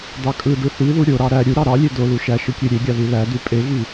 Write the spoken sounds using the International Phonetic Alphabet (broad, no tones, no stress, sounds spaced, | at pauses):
d ɑ kʼ ɯ d ɯ θ i ð u ɾʲ o ɾ ɑ ɾ æ ɾʲ u ɾ ɑ ɾ ɑ lʲ e d o l u ʃ æ ʃ ɯ kʲ ø ɾʲ e ɡʲ ɑ ð i l æ d y pʼ e ɣ i